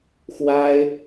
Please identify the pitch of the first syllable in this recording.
high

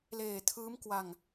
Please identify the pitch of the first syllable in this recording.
low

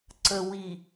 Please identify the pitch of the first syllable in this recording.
low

